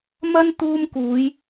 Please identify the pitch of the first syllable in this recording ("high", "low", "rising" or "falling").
high